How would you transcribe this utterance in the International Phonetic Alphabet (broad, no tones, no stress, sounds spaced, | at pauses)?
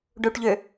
ɖ u ʈ ʎ ø